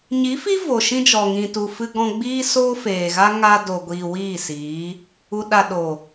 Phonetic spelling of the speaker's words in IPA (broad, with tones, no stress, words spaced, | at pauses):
ɲi˨˦fi˦ vo˨ʃĩ˦d͡ʒɔ˨ ŋĩ˨tu˨fɨ˧ɡɔ̃˧ ɡ͡biː˦ soː˦feː˨ɣa˦ ŋa˧do˨ɡʷiː˨ wiː˦˨siː˨˦ | u˨ɗa˨ ɗo˨